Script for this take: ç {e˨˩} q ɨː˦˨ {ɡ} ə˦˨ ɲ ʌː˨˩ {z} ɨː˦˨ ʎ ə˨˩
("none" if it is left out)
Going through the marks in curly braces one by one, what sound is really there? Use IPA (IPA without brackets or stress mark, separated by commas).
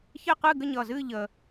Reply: e˦˨, ɡ, z